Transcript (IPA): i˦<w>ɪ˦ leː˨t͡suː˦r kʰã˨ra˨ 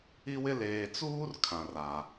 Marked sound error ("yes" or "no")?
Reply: no